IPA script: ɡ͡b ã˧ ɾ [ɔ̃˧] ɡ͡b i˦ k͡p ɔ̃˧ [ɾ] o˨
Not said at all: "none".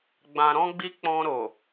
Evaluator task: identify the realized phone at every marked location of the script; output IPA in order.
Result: ɔ̃˦, ɾ

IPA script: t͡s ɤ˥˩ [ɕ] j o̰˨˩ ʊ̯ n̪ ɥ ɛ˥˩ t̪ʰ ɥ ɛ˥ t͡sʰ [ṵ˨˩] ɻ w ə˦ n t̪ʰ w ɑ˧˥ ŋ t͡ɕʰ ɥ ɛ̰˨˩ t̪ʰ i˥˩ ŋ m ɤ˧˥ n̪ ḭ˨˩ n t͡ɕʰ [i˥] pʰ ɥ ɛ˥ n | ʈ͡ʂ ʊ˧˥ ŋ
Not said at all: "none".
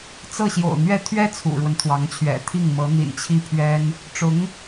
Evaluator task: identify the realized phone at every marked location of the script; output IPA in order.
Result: ɕ, ṵ˨˩, i˥

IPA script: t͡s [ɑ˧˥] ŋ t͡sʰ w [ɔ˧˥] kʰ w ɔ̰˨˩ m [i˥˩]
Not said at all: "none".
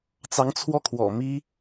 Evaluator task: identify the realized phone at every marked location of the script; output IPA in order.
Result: ɑ˧˥, ɔ˥˩, i˥

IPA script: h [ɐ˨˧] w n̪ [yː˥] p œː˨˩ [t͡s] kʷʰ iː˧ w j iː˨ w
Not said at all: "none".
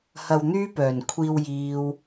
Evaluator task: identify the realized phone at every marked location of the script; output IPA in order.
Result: ɐ˧, yː˥, n

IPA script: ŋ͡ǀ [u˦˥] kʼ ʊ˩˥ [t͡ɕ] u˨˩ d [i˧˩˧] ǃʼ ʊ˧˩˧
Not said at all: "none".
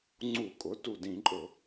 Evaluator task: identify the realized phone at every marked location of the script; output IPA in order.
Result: u˧˩˧, t, ĩ˧˩˧

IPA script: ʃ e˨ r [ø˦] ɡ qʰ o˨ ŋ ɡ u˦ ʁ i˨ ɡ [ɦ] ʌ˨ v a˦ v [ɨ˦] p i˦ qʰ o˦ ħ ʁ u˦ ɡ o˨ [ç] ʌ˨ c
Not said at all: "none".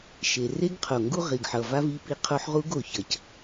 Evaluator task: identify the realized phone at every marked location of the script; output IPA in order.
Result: e˦, ħ, i˦, ç

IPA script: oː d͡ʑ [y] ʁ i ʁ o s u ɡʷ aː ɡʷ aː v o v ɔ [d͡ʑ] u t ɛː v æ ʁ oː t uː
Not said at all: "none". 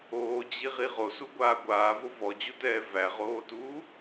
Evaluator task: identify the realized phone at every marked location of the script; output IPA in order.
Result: i, d͡ʑ

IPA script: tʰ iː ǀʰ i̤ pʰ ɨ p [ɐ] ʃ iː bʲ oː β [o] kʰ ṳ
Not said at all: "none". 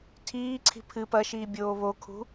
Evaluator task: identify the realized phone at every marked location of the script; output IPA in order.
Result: ɐ, o

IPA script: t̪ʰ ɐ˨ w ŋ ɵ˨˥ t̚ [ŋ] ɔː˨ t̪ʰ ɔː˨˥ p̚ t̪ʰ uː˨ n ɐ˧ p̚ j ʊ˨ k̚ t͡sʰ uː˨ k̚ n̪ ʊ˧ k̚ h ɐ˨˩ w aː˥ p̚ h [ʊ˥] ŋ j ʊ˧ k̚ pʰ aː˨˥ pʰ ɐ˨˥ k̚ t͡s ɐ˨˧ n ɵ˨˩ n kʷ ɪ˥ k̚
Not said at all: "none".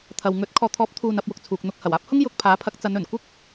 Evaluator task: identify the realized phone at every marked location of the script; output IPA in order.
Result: kʰ, ʊ˥

